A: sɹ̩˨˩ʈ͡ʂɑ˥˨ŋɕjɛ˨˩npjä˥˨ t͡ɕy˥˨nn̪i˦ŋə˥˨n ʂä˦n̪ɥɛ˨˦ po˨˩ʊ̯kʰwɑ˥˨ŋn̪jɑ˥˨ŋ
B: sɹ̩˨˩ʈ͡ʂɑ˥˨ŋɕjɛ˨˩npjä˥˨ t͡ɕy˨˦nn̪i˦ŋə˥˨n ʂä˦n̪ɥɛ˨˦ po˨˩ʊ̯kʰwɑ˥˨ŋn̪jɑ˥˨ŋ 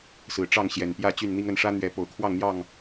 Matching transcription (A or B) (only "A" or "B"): A